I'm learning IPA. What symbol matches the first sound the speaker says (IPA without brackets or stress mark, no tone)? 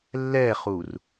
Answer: lː